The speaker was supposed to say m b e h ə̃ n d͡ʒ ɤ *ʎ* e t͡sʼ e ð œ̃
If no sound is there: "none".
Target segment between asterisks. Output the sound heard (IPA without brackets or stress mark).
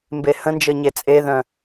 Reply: ɲ